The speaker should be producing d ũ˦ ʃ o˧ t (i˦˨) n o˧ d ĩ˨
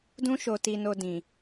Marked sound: incorrect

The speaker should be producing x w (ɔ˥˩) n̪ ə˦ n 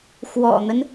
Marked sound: incorrect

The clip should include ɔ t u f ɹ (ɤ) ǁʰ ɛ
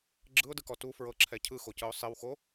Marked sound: correct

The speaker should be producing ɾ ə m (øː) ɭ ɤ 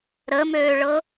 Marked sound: correct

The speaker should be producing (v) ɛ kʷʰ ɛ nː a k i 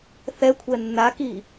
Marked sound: incorrect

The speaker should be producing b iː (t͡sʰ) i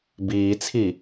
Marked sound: correct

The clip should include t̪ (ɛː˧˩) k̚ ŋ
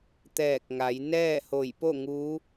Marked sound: correct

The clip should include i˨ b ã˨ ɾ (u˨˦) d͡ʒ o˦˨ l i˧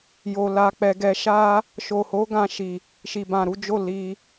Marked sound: correct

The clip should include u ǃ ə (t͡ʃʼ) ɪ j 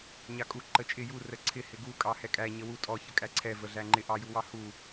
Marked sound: correct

